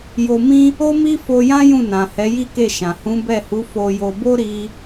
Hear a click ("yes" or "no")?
no